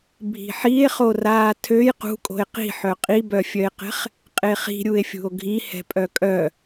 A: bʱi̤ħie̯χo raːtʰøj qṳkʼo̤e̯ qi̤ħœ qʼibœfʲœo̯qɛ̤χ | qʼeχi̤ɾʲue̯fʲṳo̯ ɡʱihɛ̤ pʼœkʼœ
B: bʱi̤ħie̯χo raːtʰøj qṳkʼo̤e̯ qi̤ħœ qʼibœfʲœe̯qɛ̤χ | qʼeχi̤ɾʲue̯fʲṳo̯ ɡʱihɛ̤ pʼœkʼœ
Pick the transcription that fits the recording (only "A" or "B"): B